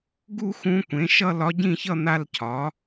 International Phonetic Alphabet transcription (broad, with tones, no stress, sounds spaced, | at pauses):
ɡ u˥˧ x ũ˧˥ kʷ ẽ˩˥ ʃ ʌ˥˧ l ɒ˧˥ ɟ ĩ˥˧ ç ʌ˥˧ n̪ a˥˧ l cʰ ɒ˩˥